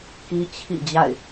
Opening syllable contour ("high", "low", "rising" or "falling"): high